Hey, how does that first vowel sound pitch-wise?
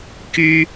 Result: high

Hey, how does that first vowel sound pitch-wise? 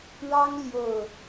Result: high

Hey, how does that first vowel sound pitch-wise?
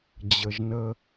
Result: low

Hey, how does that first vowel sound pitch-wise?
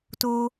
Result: high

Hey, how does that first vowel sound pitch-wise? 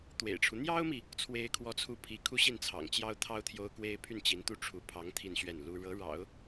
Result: low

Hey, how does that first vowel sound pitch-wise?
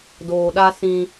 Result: low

